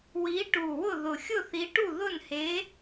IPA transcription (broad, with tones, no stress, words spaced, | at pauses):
wi˨˦ʈu˨˩wʊ˦˨ ðʊ˨˩xʲʊ˦˨θi˨˦ʈu˦˨ ðʊ˦˨nhe˨˦